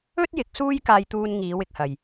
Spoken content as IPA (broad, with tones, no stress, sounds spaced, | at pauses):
ɵ˥ t̚ j ɪ˨˥ k̚ s uː˥ j k aː˧ j t̪ uː˧ n ŋ iː˨˧ w ɪ˨ k̚ h ɐ˨ j